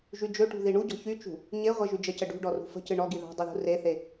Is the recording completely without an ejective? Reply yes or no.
yes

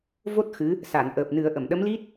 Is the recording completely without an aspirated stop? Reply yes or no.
yes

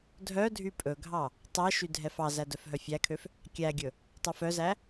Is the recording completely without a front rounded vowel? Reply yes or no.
no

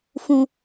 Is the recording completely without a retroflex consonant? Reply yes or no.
yes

